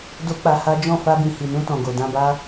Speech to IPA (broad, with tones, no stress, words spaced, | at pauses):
do˦k͡pa˧ha˦ d͡ʒɔ̃˦˨ fa˧bĩ˨hi˨nũ˧ tɔ̃˨ɡo˨ dã˧ba˦